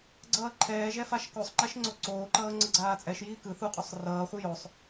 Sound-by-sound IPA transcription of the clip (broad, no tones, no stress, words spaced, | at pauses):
ɡ͡ǀʌːǃʰɛːʒɛ faʃkosˤŋ͡ǃɛʃ ŋ͡ǀoǀoːǃʌː ŋ͡ǀʌɡ͡ǀaːt͡sʼɛʃjiː kɯ θuqʼosˤ rʌːχʷɯ josˤ